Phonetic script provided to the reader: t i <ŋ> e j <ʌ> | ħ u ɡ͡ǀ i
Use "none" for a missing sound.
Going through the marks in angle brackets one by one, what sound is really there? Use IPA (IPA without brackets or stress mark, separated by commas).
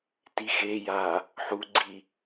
x, a